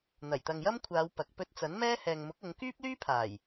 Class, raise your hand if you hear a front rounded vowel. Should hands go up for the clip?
yes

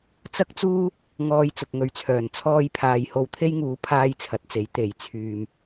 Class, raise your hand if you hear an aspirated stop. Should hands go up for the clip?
yes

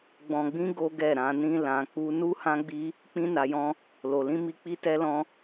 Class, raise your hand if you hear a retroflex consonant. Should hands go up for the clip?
no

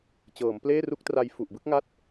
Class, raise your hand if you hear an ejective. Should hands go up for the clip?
no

